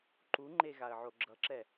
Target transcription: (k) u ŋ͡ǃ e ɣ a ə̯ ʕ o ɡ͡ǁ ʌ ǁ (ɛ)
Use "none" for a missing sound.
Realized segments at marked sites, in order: ǃ, ɛ

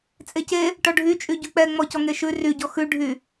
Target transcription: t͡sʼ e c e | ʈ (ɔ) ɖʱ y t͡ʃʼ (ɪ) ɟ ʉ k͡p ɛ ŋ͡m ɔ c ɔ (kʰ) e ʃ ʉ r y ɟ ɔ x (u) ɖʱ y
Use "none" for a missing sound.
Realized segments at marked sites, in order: ɔ, y, ŋ, ʉ

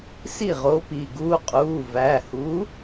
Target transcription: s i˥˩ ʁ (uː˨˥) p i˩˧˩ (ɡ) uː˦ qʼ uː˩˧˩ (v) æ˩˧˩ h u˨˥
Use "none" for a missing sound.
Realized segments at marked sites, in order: oː˨˥, ɡ, v

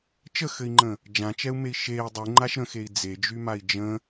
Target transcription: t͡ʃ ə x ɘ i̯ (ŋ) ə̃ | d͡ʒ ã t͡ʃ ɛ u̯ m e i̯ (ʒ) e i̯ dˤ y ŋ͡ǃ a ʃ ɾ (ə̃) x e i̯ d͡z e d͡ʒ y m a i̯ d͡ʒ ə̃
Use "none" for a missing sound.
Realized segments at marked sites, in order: ŋ͡ǃ, ʃ, ə̃

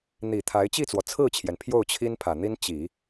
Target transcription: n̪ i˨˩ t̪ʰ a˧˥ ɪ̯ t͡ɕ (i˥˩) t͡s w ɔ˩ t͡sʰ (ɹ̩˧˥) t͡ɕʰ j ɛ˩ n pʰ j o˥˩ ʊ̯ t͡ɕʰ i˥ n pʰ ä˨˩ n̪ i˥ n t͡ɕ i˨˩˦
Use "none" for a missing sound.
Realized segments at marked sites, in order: i˥˩, ɹ̩˥˩

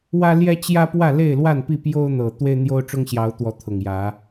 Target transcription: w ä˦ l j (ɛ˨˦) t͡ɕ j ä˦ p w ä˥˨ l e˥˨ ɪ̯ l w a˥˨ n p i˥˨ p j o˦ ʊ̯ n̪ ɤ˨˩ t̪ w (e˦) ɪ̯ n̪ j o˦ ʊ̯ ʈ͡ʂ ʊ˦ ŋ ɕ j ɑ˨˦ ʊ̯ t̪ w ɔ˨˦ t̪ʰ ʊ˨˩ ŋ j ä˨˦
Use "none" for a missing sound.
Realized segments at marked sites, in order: ɛ˦, e˦

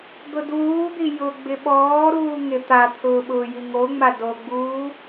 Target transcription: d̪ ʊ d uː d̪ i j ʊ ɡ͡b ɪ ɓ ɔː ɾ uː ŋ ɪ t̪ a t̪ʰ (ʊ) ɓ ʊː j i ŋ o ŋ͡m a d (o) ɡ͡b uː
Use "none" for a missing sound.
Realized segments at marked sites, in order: ʊː, o

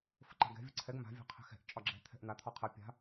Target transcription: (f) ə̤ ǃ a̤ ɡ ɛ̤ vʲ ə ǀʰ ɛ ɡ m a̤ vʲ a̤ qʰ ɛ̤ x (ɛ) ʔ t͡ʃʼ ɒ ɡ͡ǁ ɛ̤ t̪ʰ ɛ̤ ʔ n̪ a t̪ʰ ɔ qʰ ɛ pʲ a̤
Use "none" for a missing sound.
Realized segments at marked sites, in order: f, ɛ̤

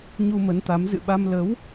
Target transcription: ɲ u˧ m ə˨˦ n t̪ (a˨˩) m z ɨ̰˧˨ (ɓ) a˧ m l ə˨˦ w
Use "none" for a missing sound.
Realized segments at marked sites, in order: a˨˦, ɓ

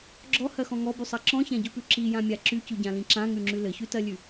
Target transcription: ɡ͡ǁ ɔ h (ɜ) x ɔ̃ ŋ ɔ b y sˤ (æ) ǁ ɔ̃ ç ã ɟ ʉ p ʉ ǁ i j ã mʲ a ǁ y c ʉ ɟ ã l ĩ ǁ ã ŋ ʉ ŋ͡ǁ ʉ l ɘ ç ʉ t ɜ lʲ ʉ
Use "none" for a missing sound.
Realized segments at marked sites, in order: ɜ, ɜ

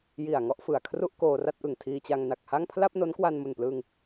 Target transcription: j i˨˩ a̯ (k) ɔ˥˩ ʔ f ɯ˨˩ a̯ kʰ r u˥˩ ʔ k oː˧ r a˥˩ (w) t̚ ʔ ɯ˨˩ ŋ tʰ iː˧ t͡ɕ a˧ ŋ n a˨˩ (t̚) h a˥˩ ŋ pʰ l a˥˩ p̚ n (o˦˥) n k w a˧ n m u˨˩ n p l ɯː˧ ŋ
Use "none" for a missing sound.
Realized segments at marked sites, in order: ŋ, none, k̚, o˦˥

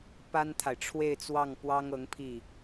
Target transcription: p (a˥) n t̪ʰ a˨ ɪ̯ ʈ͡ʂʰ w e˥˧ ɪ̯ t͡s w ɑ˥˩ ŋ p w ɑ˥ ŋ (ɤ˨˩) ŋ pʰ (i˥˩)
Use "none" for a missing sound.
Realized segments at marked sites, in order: a˥, ɤ˧˥, i˥˩

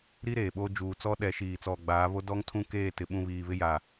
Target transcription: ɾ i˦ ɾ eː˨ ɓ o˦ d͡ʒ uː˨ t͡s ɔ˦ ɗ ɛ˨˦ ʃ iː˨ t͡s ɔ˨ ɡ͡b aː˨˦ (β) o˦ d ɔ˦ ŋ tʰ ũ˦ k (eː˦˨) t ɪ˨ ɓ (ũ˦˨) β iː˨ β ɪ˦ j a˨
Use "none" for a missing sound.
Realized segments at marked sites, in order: β, eː˦˨, ũ˦˨

